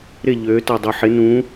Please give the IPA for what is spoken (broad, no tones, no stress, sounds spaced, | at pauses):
ɾ ɪ ʎ ø t a dˤ o ħ ɪ n ũ